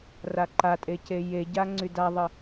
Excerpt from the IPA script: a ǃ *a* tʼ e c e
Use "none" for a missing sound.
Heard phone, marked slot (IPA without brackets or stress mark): a